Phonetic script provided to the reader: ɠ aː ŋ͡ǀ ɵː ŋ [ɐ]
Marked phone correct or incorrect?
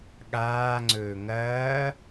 incorrect